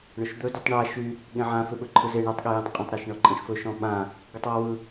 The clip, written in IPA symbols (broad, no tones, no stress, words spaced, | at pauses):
ɳɵʃd̪ɵ dytˤɳa ʃy | ɠẽʕã feɓɵǃʰɯze ɳɜtˤɠejẽtˤqʼãtˤ ɾaʃɳɔǃʼẽʃfɵ ʃɔ̃ɓã | ɡɯtˤwɔwɯ